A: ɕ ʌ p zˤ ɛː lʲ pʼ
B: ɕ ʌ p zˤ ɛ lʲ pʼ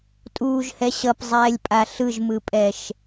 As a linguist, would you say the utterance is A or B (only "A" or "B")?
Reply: A